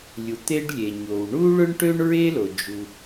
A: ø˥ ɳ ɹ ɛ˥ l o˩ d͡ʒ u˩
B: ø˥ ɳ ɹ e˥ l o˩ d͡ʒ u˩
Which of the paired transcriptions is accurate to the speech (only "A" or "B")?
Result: B